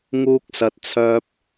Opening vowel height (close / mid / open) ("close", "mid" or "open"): close